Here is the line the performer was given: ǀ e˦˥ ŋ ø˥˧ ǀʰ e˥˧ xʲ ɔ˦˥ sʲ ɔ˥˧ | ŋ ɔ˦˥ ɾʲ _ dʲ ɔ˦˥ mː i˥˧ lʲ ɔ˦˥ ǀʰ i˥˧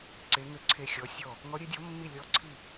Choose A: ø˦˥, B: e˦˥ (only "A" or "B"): B